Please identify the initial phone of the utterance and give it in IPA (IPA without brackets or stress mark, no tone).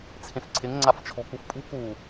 t͡sʰ